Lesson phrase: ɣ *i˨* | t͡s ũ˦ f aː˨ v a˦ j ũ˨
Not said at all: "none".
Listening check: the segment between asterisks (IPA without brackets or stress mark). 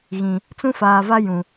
ĩ˨